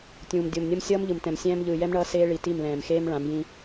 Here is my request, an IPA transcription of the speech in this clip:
tʲ ũː˨ m dʲ o˨ m nʲ ʌ˦ m sʲ ʌː˦ m ʎ ɯ˨ m t ɛ̃˨ m sʲ ɛ̃ː˦ m ʎ ɯː˨ j ɛ˦ m ɳ ʌː˦ s eː˦ ɭ i˨ t i˦˨ m l ɛ̃ː˨ m x eː˦ m ɭ ã˨˦ m j ĩ˦

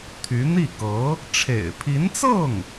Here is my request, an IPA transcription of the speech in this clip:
t̪ʰ y˧˥ n̪ i˥˩ k ɤ˧˥ | ʈ͡ʂʰ ḛ˨˩ ɪ̯ pʰ i˧˥ n t͡s ɤ˥˩ ŋ

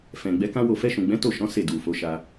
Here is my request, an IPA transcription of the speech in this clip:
f ɛ̃˨ ɡ͡b ɛ˨˦ k ã˦ w o˦˨ f ɛ˧ ʃ ũ˨ ɡ͡b ɛ̃˨˦ t o˦˨ ʃ ɔ̃˨˦ s e˦˨ d u˨ f o˨˦ ʃ a˧

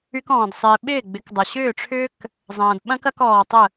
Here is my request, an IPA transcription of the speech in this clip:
y˦ k ɔ̃ː˨ d sˤ ɪː˨ ɓ ɪː˦˨ ɡ͡b ɪ˨˦ k dˤ ɐ˨ ɕ ʏː˦˨ ʈ͡ʂʰ ʏː˦ k | zˤ ɐ̃ː˨ d ɓ ɐ̃˦ k ɐ˦ k ɔː˨ tˤ ə˦˨

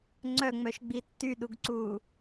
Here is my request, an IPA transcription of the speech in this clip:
ŋ͡ǀ œ ŋ͡m œ ʃ ɡ͡b i tː y ɗ u ɡ ǀ uː

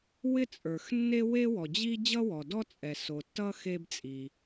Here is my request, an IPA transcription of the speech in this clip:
w ɪ˥ t͡sʼ ə˞˩ x nː e˥ w e˥ w ɔ˩ d͡ʑ i˥ d͡ʑ ʌ˥ w ɔ˩ d ɔ˥ t͡sʼ ɛ˩ s o˩ tː ʌ˥ x e˥ b t͡sʼ i˩

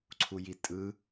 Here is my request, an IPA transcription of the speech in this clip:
ǀʰ u j i tʼ ɯ

